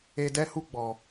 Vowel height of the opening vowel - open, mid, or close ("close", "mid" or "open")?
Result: mid